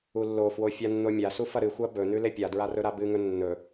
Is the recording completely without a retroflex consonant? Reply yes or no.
yes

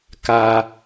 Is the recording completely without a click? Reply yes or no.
yes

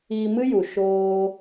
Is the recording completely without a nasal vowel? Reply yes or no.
yes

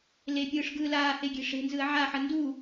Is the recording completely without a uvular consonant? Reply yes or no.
yes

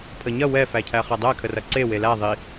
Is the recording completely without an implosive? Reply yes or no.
yes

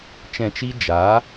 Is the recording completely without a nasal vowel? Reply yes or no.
no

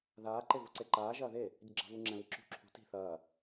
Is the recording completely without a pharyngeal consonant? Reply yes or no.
yes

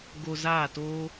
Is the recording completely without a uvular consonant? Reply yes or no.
yes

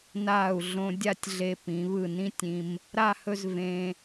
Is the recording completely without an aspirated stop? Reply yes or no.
yes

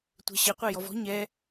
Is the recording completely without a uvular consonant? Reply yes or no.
no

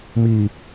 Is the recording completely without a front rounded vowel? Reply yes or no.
yes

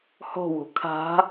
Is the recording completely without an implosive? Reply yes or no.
yes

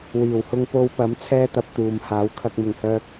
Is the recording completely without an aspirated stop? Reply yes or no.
no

